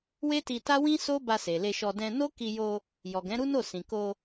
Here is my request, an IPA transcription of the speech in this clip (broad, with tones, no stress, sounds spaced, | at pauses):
w e˦ t i˧ t a˦ w ĩ˦ s o˦ b a˧ s e˨ l e˧ ʃ ɔ˧ d ɛ̃˧ n o˦ k i˧ j o˧ | j ɔ˨ ɡ ɛ̃˨˦ ɾ u˦ n o˦˨ s ĩ˨ k o˧